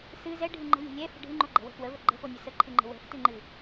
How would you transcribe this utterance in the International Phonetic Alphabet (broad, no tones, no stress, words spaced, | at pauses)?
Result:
sɨ zɛɖʱɨ ŋ͡ǃə̤lʲə̤ lʲɛfə̤ ɖʱɨŋ͡ǃoɡ͡ǃɛ̤wə̤ fwəvə ɡ͡ǃə̤fonʲə səǃʰɨŋ͡ǃə̤ wɛ̤ftɨŋ͡ǃɨ